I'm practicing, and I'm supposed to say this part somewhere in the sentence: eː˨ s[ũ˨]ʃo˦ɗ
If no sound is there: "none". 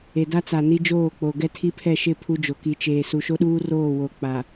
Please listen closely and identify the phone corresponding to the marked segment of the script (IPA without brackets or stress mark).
u˨